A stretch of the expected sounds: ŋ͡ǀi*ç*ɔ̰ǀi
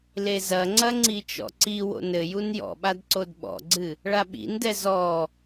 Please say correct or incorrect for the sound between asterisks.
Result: incorrect